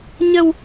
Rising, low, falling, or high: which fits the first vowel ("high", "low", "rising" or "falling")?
low